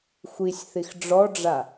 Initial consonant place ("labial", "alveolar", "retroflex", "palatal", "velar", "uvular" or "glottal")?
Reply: velar